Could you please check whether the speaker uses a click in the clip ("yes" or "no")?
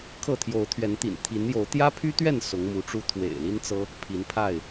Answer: no